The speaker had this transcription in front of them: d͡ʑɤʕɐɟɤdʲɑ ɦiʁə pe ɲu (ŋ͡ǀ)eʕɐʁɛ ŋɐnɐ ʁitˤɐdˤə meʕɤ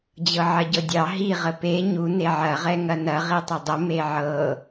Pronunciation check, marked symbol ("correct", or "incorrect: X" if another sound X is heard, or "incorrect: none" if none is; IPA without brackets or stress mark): incorrect: n